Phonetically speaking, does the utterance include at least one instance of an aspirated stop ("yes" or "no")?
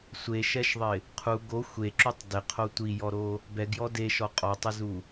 yes